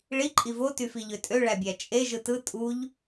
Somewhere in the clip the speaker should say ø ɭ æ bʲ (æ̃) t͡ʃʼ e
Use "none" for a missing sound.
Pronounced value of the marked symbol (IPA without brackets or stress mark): æ